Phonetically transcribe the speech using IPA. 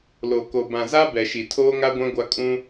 l o˨ k o˨ b ã˨ z a˦ b ɛ˨ ʃ i˨ tʰ oː˦ ŋ a˦ ɡʷ ã˦ ɡʷ a˦ kʼ ũ˦

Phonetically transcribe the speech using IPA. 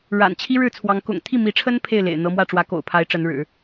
ɻ a̰˨˩ n t͡ɕʰ i˥ ɻ ɻ̩˥˩ t͡sʰ w ɑ˧˥ ŋ k ʊ̰˨˩ ŋ t̪ʰ i˥˩ m i˧˥ ʈ͡ʂʰ ə˥ n pʰ e˥˩ ɪ̯ l ḛ˨˩ ɪ̯ n̪ ɤ˧˥ m w ä˥˩ ʈ͡ʂ w ä˧˥ k o̰˨˩ ʊ̯ pʰ a˧˥ ɪ̯ ʈ͡ʂ ə˧˥ n ɻ ɻ̩˨˩˦

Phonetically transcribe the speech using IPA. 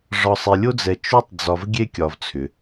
ʐ ɒ˨ sˤ e˨ lʲ o˦ d͡z ɛ˨ t͡ʃ o˦ tˤ d͡z ɒ˨ v ɡʲ e˦ kʲ ɒ˨ v t͡sʰ ʏ˩

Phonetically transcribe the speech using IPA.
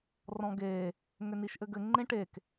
r ɔ̃ ɡ e | ŋ ʏ n i ʃ ʔ ɘ ɡ ɘ ŋ͡ǃ ẽ ʈ e k

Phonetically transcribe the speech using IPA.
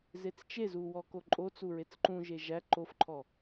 z e t͡s t͡ʃ e z u w ɔ k o ǃʼ o t͡s u ɹ e t͡s ǃ ũ ʒ e ʒ æ ǃ o f ǃʰ ɔ

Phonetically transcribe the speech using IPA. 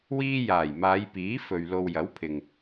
w iː˧ j aː˨˩ j m aː˨˧ j p iː˨˥ f ɵ˨ ɥ l o˨ w j ɐ˨˥ w pʰ ɪ˨ ŋ

